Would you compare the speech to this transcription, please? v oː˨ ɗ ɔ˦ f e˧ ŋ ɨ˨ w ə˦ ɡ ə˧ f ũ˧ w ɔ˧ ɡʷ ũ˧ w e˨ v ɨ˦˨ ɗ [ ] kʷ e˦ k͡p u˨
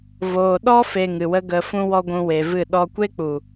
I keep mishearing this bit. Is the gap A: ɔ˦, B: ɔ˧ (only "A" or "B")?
B